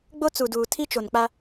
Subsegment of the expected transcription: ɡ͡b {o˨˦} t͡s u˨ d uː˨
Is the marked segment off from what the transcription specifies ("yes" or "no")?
yes